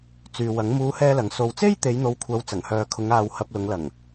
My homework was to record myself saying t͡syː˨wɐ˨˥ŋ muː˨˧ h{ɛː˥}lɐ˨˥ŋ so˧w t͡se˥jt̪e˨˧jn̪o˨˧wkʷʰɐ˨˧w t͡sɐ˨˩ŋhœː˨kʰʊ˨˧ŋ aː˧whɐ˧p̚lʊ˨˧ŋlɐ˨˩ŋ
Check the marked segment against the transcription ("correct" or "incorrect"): correct